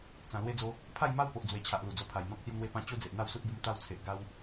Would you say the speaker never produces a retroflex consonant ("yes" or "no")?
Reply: yes